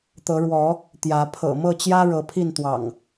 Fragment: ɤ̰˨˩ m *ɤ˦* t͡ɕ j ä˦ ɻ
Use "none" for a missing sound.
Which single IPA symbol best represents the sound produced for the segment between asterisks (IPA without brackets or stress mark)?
ɤ˥˨